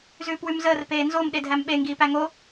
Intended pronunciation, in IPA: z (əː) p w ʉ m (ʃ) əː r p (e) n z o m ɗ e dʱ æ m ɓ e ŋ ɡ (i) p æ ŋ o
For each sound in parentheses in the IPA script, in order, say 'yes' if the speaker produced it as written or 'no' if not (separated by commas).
no, no, no, no